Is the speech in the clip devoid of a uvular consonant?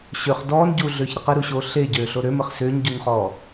no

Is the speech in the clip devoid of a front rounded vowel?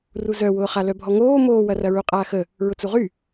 no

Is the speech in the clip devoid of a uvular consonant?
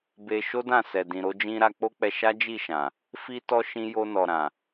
yes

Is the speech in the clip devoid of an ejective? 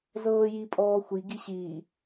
no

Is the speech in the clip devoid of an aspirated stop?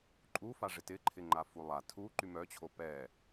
no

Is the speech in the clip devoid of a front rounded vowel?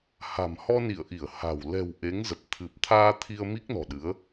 yes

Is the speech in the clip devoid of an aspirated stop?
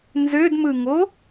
yes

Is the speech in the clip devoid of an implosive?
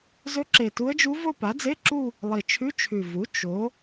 yes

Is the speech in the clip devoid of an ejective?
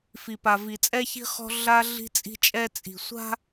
no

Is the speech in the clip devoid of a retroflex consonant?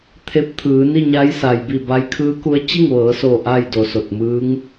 yes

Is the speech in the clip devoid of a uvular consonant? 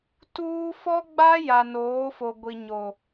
yes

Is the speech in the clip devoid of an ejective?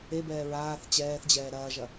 yes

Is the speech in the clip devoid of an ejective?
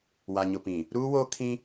yes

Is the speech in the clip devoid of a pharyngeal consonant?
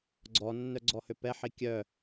no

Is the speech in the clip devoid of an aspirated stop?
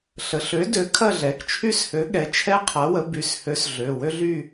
no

